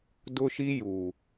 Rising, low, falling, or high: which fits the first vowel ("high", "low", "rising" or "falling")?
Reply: high